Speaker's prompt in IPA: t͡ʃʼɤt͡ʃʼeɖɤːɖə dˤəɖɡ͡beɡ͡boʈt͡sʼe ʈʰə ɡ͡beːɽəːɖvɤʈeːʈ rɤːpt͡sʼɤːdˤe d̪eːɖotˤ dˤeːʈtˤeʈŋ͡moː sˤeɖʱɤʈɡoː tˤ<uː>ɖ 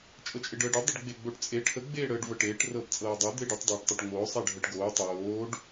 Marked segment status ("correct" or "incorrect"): incorrect